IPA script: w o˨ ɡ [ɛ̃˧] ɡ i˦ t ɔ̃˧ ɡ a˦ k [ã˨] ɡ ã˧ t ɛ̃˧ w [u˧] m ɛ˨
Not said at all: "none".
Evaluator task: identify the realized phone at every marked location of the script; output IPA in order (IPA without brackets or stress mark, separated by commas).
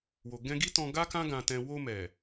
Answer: ɛ̃˧, ã˦, o˧